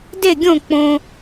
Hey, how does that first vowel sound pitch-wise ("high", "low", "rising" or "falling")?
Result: falling